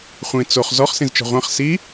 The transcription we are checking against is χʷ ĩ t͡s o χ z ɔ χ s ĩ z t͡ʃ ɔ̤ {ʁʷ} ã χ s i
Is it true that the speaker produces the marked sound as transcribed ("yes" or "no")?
yes